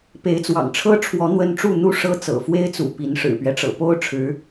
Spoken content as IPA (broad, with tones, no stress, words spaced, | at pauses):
pe˨˦ɪ̯t͡swɑ̰˨˩ŋʈ͡ʂʰɤ˦ʈ͡ʂʰwɔ˨˦ n̪wə˦n ʈ͡ʂu˥˨n̪u˥˨ʂɤ˦ t͡sɤ̰˨˩fwe˦ɪ̯t͡sṵ˨˩ pi˨˦n ʂɻ̩˨˩pɥɛ˦ʈ͡ʂɤ̰˨˩ po˦ʊ̯ʈ͡ʂʰɻ̩˨˦